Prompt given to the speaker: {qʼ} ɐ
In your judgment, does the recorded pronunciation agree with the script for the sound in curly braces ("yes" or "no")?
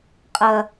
yes